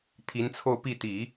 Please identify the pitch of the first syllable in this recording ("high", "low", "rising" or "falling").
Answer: rising